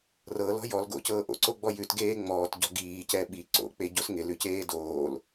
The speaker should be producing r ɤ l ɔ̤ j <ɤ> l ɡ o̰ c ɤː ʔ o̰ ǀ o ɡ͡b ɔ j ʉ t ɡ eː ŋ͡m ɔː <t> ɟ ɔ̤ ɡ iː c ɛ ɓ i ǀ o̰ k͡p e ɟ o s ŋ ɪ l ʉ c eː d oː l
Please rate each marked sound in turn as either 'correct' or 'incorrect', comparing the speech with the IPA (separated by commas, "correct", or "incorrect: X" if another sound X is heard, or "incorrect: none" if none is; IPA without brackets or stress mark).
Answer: incorrect: ɔ, correct